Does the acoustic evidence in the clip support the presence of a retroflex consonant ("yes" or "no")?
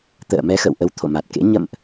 no